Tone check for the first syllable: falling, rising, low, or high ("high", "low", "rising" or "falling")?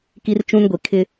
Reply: high